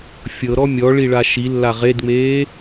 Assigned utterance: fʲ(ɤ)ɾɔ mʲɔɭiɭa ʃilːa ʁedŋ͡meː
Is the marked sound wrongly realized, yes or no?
no